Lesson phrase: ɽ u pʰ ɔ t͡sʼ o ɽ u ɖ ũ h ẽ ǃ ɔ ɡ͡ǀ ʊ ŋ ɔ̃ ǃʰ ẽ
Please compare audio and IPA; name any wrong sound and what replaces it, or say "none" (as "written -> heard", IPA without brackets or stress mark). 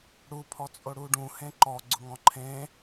none